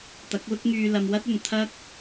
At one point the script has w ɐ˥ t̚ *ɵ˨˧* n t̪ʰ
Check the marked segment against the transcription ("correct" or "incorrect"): incorrect